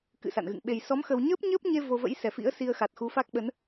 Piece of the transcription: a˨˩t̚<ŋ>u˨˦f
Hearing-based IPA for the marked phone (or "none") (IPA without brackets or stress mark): x